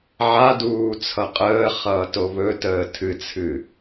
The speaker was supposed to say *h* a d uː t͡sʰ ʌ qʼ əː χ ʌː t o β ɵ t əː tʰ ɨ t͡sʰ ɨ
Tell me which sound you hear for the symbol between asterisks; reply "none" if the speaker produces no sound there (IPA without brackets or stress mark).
ʕ